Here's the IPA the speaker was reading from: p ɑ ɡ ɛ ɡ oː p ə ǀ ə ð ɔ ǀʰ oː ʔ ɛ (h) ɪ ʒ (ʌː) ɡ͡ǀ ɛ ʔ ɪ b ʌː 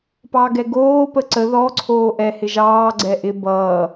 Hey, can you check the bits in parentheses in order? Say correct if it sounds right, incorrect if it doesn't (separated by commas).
correct, incorrect